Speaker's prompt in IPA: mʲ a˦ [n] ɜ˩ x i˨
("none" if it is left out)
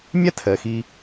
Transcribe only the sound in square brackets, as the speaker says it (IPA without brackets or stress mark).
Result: tʰ